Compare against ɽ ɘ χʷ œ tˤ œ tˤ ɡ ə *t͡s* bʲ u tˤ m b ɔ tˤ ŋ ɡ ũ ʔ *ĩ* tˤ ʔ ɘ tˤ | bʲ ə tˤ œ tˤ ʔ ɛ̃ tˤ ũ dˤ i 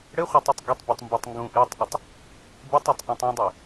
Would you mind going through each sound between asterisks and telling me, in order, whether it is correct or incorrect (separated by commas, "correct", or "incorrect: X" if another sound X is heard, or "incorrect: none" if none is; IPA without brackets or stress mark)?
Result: incorrect: tˤ, incorrect: i